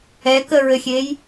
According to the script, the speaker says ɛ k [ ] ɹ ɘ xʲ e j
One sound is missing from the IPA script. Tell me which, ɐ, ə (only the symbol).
ə